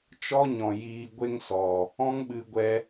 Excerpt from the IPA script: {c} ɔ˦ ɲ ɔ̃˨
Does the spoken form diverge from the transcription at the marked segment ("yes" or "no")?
yes